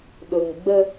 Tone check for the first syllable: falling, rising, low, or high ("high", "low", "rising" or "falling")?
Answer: low